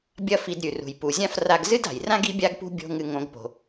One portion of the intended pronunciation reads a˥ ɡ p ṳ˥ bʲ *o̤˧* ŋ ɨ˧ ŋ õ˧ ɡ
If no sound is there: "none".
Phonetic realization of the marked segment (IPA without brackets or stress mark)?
o̤˥